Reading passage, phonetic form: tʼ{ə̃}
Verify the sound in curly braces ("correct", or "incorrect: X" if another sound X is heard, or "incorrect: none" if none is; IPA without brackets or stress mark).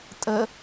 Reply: incorrect: ə